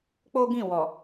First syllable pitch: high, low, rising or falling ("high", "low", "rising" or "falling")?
high